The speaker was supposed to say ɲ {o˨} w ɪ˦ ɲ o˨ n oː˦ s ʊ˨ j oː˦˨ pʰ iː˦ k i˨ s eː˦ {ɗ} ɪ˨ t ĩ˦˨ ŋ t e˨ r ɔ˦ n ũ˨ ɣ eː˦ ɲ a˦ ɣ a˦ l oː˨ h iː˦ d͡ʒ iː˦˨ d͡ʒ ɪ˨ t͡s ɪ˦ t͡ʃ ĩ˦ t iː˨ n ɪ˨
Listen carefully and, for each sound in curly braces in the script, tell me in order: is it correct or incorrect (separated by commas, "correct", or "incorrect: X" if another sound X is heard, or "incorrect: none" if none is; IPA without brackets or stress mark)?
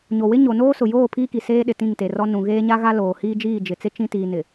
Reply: correct, correct